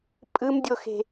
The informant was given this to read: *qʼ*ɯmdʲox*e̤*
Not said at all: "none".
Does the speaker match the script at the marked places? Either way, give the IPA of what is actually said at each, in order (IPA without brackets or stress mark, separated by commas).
pʼ, e̤